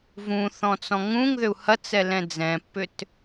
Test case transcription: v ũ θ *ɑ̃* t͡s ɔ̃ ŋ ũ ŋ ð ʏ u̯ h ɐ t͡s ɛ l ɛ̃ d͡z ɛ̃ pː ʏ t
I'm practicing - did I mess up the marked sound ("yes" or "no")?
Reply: yes